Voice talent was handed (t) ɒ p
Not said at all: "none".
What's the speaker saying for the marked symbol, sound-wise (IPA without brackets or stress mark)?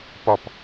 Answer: p